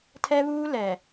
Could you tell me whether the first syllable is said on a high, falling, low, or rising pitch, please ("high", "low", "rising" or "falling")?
high